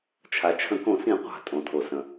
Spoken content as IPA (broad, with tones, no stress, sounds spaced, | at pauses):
t͡ʃʰ a˩ t͡ʃʰ ə̃˨˩˦ k õ˨˩˦ s ĩ˨˩˦ qʷ a̤˨˩˦ tʼ õ˩ tʰ o˩ s ə̃˩